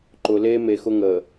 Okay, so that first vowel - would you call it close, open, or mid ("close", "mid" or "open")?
close